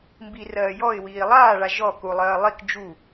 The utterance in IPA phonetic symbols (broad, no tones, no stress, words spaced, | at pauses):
mbirɜː jɔɪ̯wiː lˠaːɭa ʒɔ kulˠɜː lˠik d͡ʒu